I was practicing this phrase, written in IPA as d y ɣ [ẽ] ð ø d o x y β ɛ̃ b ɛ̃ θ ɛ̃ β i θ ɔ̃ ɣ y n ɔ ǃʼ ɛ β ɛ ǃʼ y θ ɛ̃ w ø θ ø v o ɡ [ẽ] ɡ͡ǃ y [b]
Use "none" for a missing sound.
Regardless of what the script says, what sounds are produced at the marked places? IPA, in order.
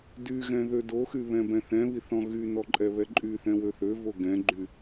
ɛ̃, ɛ̃, none

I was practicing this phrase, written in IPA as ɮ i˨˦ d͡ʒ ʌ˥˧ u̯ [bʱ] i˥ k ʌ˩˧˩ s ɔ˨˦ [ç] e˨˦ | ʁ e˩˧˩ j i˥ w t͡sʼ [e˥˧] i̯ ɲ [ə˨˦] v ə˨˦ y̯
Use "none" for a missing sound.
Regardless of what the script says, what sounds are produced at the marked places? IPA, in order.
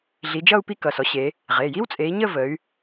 p, ɕ, e˨˦, ə˥˧

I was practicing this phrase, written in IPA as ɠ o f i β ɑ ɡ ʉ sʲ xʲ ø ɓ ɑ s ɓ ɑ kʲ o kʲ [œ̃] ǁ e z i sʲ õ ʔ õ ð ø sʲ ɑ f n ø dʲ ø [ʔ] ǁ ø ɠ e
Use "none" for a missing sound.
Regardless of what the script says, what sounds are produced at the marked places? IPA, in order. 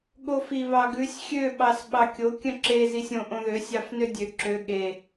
œ̃, none

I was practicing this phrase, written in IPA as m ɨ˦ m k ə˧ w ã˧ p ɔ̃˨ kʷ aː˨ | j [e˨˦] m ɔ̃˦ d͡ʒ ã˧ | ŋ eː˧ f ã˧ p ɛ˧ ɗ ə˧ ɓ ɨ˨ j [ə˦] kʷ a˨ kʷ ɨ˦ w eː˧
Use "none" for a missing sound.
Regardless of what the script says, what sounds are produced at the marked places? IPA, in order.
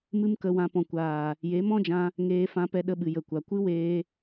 e˨˦, ə˨

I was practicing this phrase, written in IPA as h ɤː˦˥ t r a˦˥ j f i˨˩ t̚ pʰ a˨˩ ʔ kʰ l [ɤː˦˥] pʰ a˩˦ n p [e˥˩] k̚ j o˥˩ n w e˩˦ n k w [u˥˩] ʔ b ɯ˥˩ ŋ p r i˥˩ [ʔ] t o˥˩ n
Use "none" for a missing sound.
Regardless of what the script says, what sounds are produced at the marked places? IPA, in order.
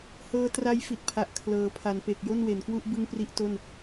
ɤː˩˦, e˨˩, u˥˩, ʔ

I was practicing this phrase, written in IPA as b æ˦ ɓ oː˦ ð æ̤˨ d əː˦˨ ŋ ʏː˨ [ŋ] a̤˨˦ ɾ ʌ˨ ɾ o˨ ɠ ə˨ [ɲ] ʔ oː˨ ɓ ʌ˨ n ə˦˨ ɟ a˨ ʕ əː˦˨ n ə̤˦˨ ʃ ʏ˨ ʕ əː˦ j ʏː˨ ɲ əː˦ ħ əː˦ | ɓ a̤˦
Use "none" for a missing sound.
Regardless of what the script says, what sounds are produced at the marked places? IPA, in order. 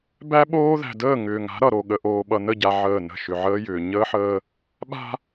ŋ, none

